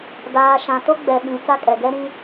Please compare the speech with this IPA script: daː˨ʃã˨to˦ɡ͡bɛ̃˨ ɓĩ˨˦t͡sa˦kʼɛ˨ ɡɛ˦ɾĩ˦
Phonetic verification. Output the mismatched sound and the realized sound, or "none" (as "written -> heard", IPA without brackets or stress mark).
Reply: ɛ̃˨ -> ɛ˨